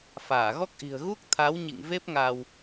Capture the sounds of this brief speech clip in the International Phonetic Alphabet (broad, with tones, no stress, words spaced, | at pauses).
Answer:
faː˧˩ɣɔ˦˥k̚ʔi̤˨˩ə̯ ɣu˦˥k̚t̪ʰa˨˦w ɲḭ˧˨ŋ ve˦˥p̚ŋa˧w